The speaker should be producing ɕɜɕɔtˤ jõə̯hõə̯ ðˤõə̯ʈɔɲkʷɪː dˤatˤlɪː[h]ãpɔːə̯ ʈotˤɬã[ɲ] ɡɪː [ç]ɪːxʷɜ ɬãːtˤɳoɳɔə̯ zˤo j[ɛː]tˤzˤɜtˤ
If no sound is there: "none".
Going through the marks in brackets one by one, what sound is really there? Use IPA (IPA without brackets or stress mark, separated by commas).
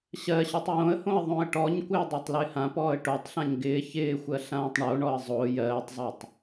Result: h, ɲ, ç, ɜː